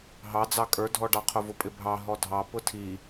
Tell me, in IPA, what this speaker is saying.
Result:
ɦ ɑ d͡z ɑ kʼ ə˞ dʱ ɔ ɖ ɑ qʰ ʊ v ʊ pʼ ɪ bʱ ɑ ɦ ɔ dʱ ɑ p ʊ tʰ i

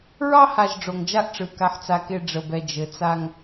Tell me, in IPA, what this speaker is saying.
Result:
ɹ ɑ˦ h a˨ ʒ ɖ͡ʐ o˨ ŋ d͡ʒ a˦ ʔ ʈ͡ʂ ɯ˨ k a˨ ħ t͡s a˨ k e˨ ɖ͡ʐ ə˨ b ɛ˨ d͡ʒ ɘ˨ t͡s a˦ ŋ

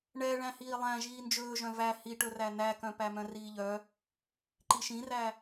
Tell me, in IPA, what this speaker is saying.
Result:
ɳ ɛ ɭ æ̃ h iː lˠ æ̃ ʒ iː n d͡ʒ ɵː ʒ œ̃ v æ h i ʈ ɵ r æ n æ k œ̃ p æ m œ̃ r iː ʎ œ | ǃ i ʃ ĩ r æ

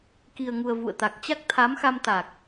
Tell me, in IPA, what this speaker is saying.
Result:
k i˨˩ ə̯ ŋ u˨˩ ə̯ v ṵ˧˨ ə̯ t̪ a˨˩ k̚ t͡ɕ a˦˥ k̚ t̪ʰ a˨˦ m x a˧ m t̪ a˨˩ k̚

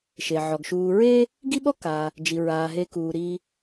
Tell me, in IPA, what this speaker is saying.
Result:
ʃ e˩ ʕ ɔ˩ ɡ ʃ uː˨ ɹ e˦ | ɡ i˥ ɓ ɔ˥ k a˩ | d͡ʒ i˩ ɹ aː˩ ɦ e˨ k uː˩ ɾ i˨

